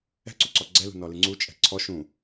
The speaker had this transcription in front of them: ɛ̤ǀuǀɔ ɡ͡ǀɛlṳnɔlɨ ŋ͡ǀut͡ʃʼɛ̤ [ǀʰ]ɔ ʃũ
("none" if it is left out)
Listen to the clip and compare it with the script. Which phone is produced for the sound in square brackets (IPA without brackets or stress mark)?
ǀʰ